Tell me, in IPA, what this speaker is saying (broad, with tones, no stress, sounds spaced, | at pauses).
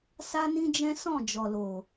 s a˦ n ĩ˦ d͡ʒ ɛ̃˦ s ɔ̃˦˨ d͡ʒ ɔ˨ l o˨